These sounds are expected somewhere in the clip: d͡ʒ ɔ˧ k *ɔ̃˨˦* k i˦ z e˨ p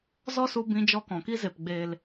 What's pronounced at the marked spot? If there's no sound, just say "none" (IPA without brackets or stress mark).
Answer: ɔ̃˨